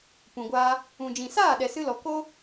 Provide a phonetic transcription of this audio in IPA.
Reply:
p ũ˨ ɡʷ aː˧ | ũ˨ d͡ʒ ĩ˨ s aː˦˨ ɗ ɛ˨ s ɨ˧ l ɔ˨ k oː˦

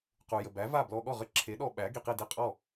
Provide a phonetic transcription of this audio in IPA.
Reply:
q u˩ j ə˩ b æ˩˥ v a˥˩ b l ɔ˧ ɠ ɔ˥˩ ʁ ə˥˩ ǁʰ e˩˥ ɗ ɔ˧ ɓ æ˩˥ ɡ i˩ q i˥˩ d i˥˩ qʼ ɔ˥˩

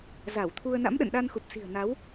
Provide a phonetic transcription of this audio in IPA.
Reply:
z a˧˩ w t̪ʰ u˧ ə̯ n a̰˧˥ m ɗ ə̰˧˨ n ɗ a˧ n x u˨˩ p̚ s i̤˨˩ ə̯ n a˨˦ w

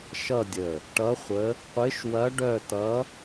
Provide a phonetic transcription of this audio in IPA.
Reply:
ʃ ʌ˥˧ dʲ ə˧˩ | ʈ ʌ˧˥ χʷ ə˧˥ | qʷ ɪ˧˥ ʃ w ɐ˧˥ ɖ œ˥˧ t ʌ˧˥

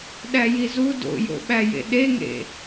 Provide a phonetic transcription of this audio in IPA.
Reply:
ɗ æ j i z u d o̰ j o̰ ɓ æ j ḛ ɗ e ŋ ḛ

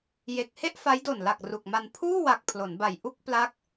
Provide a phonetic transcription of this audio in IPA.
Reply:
j e˨˩ k̚ h e˥˩ ʔ f a˦˥ j d o˨˩ n l a˨˩ k̚ r u˨˩ k̚ m a˧ n pʰ uː˥˩ w a˨˩ k̚ pʰ l o˩˦ n b a˨˩ j ʔ u˥˩ k̚ p l a˦˥ k̚

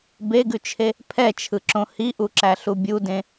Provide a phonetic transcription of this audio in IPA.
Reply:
b e ɡ ʉ t͡ʃʰ e | pʰ ɛ t͡ʃʰ ɯ ǁ õ h i ʔ u ǁ æ ɬ u bʲ u d ẽ

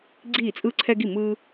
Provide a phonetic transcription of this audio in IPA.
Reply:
ɡ͡ǀ iː˧˩ t͡sʼ ɯ˧ ǀʰ ɛ˧ ɡ i˧˩ m ɯː˧

